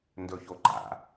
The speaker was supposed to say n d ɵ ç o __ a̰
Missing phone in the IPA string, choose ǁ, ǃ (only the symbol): ǃ